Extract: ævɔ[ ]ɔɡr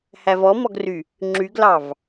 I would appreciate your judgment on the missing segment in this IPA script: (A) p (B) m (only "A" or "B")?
B